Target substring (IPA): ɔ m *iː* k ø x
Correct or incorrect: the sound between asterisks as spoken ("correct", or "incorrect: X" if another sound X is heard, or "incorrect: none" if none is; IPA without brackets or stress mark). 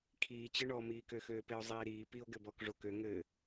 correct